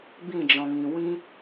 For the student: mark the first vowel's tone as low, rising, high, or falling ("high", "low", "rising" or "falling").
falling